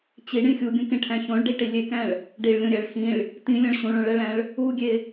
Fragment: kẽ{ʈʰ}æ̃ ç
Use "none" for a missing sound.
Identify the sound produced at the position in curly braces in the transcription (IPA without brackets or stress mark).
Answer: ʈʰ